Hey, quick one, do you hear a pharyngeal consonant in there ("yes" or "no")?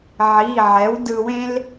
yes